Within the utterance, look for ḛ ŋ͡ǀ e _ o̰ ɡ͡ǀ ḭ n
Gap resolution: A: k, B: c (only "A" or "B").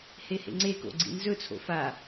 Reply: A